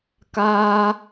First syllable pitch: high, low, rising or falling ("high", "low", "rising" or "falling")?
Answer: high